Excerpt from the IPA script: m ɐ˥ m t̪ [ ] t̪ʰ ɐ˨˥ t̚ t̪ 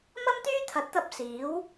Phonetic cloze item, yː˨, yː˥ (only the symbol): yː˥